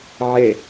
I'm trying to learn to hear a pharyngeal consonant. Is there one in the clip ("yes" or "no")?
yes